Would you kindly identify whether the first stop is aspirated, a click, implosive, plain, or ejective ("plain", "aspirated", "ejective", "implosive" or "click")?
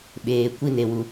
implosive